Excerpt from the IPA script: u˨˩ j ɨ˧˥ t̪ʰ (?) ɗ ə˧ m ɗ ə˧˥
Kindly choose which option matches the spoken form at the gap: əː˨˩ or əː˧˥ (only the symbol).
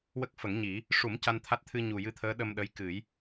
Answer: əː˧˥